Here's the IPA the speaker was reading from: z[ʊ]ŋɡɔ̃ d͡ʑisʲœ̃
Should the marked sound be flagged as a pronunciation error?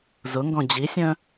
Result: no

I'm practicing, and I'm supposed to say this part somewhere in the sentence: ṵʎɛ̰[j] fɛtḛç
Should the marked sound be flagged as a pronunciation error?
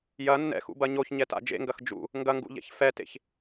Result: yes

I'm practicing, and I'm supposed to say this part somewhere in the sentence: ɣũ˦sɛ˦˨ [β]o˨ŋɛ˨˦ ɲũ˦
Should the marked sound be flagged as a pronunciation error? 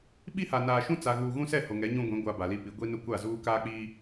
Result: yes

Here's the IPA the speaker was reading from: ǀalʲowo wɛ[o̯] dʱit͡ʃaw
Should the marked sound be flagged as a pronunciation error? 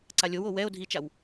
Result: no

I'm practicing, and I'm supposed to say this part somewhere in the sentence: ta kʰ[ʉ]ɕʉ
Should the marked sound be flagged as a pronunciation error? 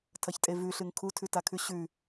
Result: no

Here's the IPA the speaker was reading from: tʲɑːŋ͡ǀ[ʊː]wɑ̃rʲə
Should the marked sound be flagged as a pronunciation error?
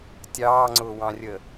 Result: no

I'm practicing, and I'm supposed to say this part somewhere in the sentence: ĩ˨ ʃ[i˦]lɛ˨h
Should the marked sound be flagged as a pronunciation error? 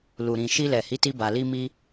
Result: yes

